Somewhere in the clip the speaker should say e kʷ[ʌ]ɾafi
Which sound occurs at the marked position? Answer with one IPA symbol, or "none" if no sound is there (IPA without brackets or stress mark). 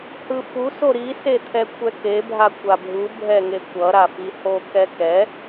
ʌ